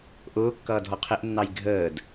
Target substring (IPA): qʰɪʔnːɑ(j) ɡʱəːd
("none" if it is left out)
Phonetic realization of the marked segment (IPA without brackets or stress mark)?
j